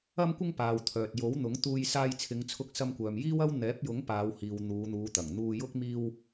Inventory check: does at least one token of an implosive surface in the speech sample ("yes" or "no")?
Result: no